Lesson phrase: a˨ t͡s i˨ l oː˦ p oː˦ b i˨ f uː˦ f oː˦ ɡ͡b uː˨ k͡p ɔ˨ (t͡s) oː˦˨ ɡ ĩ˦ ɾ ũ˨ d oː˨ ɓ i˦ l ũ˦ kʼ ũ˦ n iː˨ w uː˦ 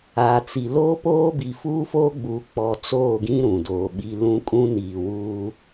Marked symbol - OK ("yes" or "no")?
yes